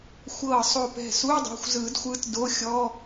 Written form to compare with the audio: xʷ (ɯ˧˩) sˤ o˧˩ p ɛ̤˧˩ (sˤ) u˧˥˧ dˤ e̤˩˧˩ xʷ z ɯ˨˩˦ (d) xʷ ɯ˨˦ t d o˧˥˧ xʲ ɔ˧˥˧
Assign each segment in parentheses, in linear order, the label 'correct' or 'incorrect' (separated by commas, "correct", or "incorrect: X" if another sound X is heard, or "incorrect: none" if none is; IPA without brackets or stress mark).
incorrect: ɤ˧˩, incorrect: s, correct